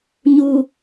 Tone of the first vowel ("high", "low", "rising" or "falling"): low